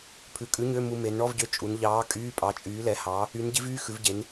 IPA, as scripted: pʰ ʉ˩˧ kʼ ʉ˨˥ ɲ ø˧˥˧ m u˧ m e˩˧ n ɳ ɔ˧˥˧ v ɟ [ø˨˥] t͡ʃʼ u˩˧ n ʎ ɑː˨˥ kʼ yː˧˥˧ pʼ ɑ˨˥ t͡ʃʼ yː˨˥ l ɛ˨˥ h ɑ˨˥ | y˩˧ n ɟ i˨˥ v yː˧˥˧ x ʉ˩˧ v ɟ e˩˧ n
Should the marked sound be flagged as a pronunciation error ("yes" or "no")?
no